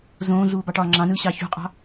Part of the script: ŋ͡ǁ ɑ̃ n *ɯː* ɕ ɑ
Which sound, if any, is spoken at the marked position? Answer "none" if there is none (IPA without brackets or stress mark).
ɯː